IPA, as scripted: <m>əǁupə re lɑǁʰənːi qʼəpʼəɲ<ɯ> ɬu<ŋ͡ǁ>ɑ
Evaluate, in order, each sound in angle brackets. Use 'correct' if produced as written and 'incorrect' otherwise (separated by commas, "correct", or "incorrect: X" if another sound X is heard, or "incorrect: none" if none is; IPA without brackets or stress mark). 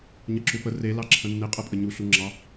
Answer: incorrect: ɲ, incorrect: u, correct